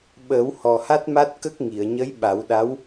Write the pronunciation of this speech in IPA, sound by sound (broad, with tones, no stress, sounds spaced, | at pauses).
ɓ əː˨˩˦ w h ɔ˨˩ h a˦˥ t̚ m a˦˥ t̚ k ə˦˥ k̚ ŋ i˨˩˨ ə̯ ɲ ə˧˥ j ɓ a˨˩˦ w ɗ a˧˥ w